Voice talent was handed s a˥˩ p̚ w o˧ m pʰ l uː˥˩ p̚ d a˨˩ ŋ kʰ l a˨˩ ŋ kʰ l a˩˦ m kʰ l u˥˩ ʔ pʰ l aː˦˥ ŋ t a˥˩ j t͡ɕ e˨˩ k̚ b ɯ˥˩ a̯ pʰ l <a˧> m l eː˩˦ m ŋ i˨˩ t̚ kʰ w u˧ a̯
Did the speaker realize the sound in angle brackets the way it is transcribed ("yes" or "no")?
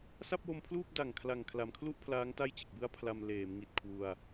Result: yes